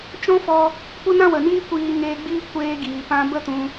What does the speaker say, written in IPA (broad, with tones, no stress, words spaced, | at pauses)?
t͡ʃɔ̃˦fɔ˧ | kʷə˦nã˦wə˨niː˦ kʷiː˧ŋeː˧ɡ͡biː˦ kʷeː˧ɡiː˨pã˧ bə˦tũ˧